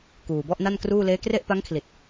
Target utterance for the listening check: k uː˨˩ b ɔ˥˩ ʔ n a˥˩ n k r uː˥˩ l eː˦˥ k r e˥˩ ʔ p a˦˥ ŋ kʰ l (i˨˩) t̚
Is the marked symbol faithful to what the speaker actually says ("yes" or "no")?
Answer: yes